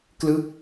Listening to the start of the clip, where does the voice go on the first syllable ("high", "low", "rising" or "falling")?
falling